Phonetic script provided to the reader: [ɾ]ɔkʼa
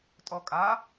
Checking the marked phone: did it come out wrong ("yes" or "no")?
yes